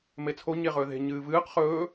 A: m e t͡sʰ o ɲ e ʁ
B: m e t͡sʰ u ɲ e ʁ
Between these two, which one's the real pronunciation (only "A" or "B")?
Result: A